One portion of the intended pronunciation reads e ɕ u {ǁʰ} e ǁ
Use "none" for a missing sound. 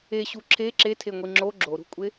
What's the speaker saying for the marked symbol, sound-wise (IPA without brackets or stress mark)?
ǁʰ